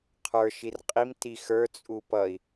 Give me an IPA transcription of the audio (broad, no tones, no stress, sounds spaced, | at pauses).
qʰ ə˞ ʃ i r qʼ i m t i x ə˞ t͡sʼ u p ʌ i̯